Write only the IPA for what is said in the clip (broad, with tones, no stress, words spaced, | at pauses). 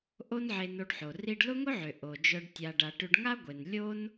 ʔo˦nʕe˧no˧ɖħo˨ ri˧ɖlʊ˦ŋʊ˦ʕʏ˨ ʔo˨d͡ʒœ˧ɖ tʲa˧ɖa˧ ʈʏ˧ɖŋa˦ɡʷe˨nlʲo˦n